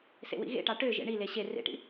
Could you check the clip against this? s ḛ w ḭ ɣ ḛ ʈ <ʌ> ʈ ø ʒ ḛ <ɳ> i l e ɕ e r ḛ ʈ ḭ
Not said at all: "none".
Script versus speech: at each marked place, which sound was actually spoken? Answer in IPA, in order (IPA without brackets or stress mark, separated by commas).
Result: ɑ, ɳ